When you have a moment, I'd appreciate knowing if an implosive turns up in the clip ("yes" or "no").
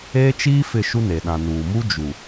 yes